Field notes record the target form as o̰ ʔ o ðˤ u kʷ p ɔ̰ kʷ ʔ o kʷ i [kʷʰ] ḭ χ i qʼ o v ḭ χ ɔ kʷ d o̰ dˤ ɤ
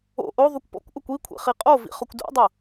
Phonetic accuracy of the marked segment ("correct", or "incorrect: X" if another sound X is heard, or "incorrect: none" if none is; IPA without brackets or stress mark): correct